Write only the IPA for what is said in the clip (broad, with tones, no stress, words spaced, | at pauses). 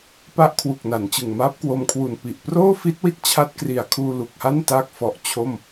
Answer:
pa˦˥ʔkʰwu˨˩k̚na˩˦n t͡ɕɯ˨˩ŋmaː˦˥p̚kwo˧mkʰwu˨˩n pi˨˩ʔproː˥˩fi˦˥t̚ wi˦˥t̚t͡ɕʰa˦˥t̚kri˨˩a̯kʰuː˧ lu˨˩k̚ha˥˩nta˦˥k̚fɔ˨˩ʔ t͡ɕʰo˥˩m